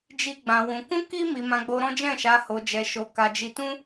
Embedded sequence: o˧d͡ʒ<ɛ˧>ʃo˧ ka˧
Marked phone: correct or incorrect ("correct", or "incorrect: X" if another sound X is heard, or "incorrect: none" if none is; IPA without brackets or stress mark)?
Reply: correct